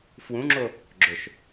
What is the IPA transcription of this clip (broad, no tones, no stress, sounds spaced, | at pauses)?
f w ũ ŋ͡ǁ o | ɡ͡ǁ ɵ ʃ